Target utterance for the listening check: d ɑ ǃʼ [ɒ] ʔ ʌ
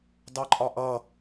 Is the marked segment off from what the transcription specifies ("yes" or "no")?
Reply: no